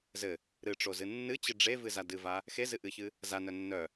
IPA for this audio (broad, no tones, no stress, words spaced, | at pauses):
zɘ | ɾɨʈ͡ʂozɨ nːɨt͡ɕɨ ɖ͡ʐevɨza dɨva | xezɨ ʔɨçɨ | za nœnːœ